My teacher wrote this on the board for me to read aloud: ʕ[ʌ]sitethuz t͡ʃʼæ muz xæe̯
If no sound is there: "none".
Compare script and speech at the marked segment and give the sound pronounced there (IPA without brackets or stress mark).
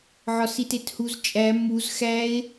ɒ